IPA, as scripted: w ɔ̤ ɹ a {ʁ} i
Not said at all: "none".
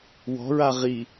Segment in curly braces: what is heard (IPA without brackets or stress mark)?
ʁ